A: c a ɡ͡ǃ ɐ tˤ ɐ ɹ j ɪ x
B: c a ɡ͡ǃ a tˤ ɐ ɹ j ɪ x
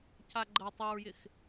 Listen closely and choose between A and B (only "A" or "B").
A